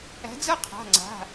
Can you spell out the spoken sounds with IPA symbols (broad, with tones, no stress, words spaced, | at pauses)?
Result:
æ̤˨˦d͡zɤ˥ qʰa̤˩˧˩ŋ͡ǀa̤˩˧˩